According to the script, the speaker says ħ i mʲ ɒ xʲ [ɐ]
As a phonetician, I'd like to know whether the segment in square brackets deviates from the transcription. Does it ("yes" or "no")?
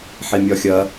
no